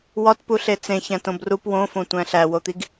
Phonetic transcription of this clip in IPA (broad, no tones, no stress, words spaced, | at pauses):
wɒtpuɬe t͡sẽ çæ̃tõbrup wõfõ tʷæ̃ɬæwot̪iɡ